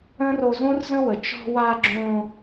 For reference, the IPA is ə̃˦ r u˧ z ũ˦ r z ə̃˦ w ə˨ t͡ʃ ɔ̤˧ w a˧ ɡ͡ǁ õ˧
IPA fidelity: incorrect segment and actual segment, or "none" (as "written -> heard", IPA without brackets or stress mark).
u˧ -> o˧